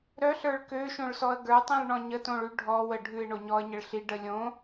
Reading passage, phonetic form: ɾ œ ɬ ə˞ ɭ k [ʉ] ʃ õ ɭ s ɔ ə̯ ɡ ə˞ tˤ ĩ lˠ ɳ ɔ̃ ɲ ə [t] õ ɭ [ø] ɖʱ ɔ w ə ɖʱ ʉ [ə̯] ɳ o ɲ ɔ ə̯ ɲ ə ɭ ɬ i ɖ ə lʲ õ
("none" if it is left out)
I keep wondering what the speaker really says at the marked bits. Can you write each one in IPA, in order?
ø, t, ʉ, ɪ̯

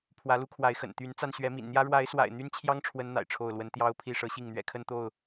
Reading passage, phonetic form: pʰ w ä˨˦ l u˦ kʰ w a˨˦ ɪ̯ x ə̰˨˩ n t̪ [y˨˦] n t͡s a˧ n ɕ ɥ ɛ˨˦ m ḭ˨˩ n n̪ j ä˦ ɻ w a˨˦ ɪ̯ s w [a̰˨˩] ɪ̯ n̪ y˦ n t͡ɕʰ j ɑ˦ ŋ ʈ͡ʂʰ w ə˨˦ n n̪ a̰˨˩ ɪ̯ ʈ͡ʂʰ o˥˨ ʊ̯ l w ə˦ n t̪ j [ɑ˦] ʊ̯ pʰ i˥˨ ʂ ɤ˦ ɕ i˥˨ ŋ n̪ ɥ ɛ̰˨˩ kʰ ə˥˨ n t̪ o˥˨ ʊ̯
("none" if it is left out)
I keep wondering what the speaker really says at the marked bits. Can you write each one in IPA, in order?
y˨˦, a̰˨˩, ɑ˦

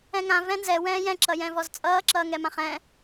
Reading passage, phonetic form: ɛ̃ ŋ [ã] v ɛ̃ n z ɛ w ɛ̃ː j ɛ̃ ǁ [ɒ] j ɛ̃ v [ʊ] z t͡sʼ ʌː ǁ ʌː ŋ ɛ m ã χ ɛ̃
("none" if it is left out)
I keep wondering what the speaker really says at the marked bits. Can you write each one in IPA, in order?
ã, ʌ, ɔ

